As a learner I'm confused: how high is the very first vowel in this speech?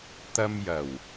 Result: low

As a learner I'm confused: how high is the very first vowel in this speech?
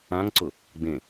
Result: low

